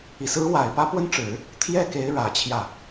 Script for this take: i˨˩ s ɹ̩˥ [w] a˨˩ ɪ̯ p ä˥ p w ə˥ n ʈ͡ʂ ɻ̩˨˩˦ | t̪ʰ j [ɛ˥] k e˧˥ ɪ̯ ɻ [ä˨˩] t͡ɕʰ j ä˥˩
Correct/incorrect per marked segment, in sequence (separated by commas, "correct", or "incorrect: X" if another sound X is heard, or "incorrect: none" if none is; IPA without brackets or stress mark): correct, incorrect: ɛ˥˩, correct